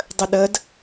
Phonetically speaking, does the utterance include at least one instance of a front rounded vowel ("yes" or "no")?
no